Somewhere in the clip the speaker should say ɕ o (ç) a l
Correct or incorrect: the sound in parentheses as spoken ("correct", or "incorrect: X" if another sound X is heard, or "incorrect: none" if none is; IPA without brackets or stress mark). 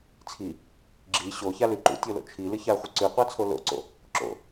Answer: correct